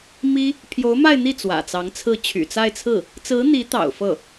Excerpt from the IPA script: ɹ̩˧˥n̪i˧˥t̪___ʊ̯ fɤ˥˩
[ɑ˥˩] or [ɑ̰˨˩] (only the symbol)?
ɑ̰˨˩